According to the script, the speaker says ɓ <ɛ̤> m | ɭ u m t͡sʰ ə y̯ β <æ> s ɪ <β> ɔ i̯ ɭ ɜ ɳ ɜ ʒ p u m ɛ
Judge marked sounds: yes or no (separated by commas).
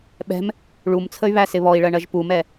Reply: yes, yes, yes